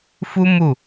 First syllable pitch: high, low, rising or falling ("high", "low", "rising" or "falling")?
high